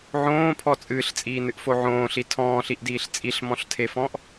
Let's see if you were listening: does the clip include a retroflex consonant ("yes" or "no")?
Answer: no